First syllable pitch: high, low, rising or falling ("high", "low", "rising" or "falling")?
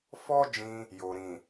high